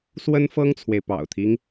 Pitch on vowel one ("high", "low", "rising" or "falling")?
high